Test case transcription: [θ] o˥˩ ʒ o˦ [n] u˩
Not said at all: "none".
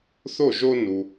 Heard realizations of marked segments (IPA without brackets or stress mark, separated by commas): θ, n